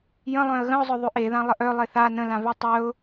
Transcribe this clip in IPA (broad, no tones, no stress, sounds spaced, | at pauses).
j ə̃ lˠ œ̃ ə̯ ɣ ə̃ ʊ̯ zˤ œ ðˤ ʉ ʔ e ð ã lˠ ə ʔ œ lˠ e θ a n ə̃ l ã v ʉ tˤ œ ʊ̯